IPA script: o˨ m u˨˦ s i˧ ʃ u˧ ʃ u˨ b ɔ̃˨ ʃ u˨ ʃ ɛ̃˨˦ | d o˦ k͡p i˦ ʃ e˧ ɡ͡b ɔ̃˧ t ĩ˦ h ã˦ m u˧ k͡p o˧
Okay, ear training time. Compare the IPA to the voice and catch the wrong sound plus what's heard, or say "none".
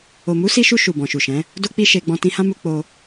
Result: ĩ˦ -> ĩ˧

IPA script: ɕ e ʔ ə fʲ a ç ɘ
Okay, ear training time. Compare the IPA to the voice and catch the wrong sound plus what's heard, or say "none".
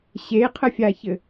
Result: ʔ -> qʰ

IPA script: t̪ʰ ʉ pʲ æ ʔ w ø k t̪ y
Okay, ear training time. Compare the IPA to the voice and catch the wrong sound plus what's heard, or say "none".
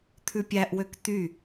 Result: none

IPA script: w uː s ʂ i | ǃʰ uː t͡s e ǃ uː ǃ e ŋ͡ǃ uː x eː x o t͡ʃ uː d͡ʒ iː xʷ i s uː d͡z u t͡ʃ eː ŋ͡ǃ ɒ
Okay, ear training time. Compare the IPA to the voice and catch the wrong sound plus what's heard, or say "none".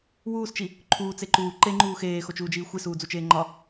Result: ʂ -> t͡ʃ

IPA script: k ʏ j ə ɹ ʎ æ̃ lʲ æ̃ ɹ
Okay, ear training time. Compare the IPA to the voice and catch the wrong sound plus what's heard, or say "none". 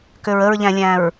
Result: j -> ɹ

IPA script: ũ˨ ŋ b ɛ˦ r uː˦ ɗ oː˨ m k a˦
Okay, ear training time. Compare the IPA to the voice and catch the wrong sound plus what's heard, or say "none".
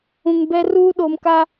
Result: none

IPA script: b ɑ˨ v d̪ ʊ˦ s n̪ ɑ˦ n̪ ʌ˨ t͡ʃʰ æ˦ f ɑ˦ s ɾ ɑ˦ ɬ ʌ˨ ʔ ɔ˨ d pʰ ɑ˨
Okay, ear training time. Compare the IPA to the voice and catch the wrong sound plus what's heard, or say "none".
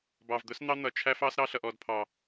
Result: none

